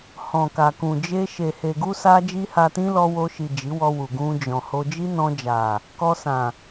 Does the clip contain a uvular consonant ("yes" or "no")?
no